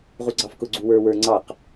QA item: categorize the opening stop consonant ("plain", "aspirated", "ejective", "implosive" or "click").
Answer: click